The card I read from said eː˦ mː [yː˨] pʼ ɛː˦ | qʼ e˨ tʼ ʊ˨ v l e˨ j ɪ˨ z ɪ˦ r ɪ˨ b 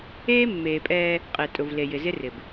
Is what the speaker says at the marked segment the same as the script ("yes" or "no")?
no